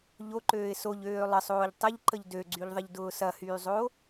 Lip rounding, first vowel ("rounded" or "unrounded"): rounded